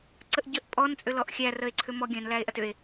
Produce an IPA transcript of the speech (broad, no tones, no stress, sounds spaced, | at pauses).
ǀ ə ʔ ɟ ə ʔ pʼ ɔ n t͡sʼ ʏ l ɔ ʔ xʲ æ r ə e̯ ǀʰ ʏ m ɔ ɡʲ œ̃ n l æ e̯ ʔ ɐ t ʏ e̯